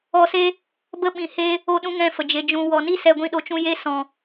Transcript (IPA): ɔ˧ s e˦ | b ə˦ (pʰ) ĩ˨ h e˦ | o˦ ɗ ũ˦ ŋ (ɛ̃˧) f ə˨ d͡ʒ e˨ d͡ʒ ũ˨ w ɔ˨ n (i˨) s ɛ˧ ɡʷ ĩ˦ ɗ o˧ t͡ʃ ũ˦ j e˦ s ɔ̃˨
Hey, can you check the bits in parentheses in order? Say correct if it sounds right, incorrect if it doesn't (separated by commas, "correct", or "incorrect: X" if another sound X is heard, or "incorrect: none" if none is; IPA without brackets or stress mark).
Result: incorrect: ɓ, incorrect: ɛ̃˦˨, incorrect: i˦